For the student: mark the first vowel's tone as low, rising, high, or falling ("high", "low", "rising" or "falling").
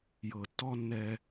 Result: low